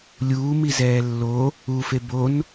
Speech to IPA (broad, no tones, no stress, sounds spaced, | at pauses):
lʲ uː m i z ɛː lː o | u f e b o n